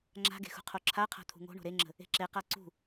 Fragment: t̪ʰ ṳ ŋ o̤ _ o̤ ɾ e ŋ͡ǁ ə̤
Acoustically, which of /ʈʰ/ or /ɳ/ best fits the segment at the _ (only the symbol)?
ɳ